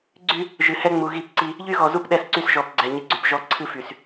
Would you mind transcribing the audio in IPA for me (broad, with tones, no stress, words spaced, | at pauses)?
ɡ͡ǀy˦ | ʒɨ˨hɛ˦ ŋ͡mu˨ɣi˦˨pǀi˦ | ʎy˦ɣɔ˨ zu˦pɗɛ˦˨sǀy˦s ʒɔ˨p ɡ͡ǀɛ˨ɲɨ˨ɡ͡ǀy˨p ʒɔ˦ ǀʰɨ˦fy˨s